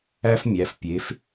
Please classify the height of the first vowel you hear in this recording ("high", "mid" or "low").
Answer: low